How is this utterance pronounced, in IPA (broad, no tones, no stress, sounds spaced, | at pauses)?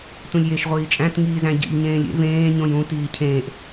t ũ lʲ j e ʃ ʁʷ iː t͡ʃʼ æ̃ t ŋ iː z æ̃ ɟ ḭ ʎ ɲ ẽː lʲ ḛ v ẽː ɲ õ j ũ t iː cʰ ẽː ʔ